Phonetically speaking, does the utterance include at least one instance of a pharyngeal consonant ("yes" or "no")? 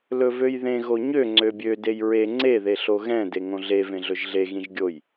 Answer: no